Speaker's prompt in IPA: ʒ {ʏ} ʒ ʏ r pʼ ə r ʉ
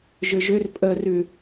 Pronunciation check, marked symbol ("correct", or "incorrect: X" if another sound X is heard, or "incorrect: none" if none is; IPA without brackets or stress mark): correct